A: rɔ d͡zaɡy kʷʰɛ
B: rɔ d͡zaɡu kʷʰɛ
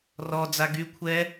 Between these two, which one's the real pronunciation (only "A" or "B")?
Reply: A